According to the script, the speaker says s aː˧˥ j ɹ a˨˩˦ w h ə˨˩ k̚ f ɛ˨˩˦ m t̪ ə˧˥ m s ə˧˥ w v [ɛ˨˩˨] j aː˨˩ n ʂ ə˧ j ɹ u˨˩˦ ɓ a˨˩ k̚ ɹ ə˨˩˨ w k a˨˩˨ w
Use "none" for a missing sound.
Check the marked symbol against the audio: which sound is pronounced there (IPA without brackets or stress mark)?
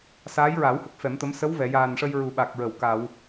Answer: ɛ˨˩˨